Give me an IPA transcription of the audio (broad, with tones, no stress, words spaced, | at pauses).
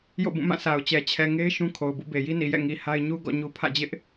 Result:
jo̰˦˨bũ˦˨mã˦˨ sʰa˨ʊ̯t͡ɕɛ˨ t͡ɕʰɛ˨ŋe˦ɪ̯ ʃũ˦kʰo˨ʊ̯bṵ˦˨ be˨ji˦ni˨jɛ̰˦˨ ŋi˨ha˦ɪ̯ ɲu˦ ɡɔ̰˦˨ɲu˦ pʰä̰˦˨d͡ʑɪ˦ʔ